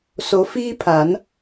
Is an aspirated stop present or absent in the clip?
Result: present